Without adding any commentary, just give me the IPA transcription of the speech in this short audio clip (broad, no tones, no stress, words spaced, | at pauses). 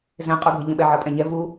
zɛ̃qʼuɡʱɘʎə̃ ɓɛʕʌpʼɛ̃ɲɛ vu